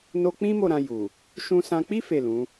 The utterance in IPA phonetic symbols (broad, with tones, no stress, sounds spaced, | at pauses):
n o˦ k͡p ĩ˦ m o˦˨ ɾ ã˧ j u˨ | ʃ ũ˧ s ã˧ k͡p i˦ f e˦˨ l ũ˨˦